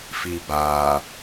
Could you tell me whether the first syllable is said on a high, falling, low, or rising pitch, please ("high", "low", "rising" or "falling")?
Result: low